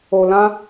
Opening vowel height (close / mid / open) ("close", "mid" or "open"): mid